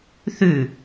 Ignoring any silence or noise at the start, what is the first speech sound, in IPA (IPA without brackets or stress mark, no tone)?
θ